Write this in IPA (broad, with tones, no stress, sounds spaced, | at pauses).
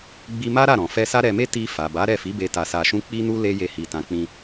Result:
ɡ͡b i˧ m a˦ ɾ a˦˨ ɾ ɔ̃˨ f ɛ˧ s a˦ ɾ ɛ˧ m e˦ t i˧ f a˨ b a˨˦ ɾ ɛ˦˨ f i˨˦ b e˧ t a˧ s a˧ ʃ ũ˦ k͡p i˦ n u˦ l e˦ j e˦˨ h i˧ t ã˧ k͡p ĩ˧